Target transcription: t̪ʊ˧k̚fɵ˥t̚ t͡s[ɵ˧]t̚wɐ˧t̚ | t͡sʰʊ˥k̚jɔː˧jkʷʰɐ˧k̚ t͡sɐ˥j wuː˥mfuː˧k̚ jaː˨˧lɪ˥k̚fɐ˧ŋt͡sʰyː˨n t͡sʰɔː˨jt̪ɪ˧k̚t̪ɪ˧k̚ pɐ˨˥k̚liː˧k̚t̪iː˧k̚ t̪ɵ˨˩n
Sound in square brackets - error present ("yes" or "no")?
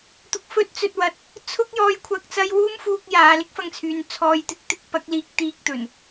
no